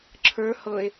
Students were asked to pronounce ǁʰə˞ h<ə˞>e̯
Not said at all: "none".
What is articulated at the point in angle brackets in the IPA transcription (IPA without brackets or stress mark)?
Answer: ɤ